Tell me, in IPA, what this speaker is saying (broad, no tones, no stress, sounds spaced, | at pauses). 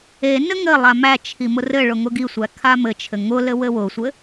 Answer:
e n ɘ ŋ ɘ lˠ a m æ t͡ʃʰ i m ʊ r ɘ ɭ ʊ ŋ ʊ ɡ i sʷ æ kʰ a m ɘ t͡ʃʰ ɘ ŋ ʊ l ɘ w ɘ w ʊ sʷ ɘ